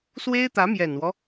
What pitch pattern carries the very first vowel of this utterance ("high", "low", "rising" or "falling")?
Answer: high